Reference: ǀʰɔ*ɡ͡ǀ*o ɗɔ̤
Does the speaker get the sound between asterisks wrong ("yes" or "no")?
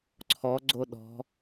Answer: no